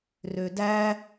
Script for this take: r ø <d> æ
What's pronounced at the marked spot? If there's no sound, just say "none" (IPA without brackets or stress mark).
d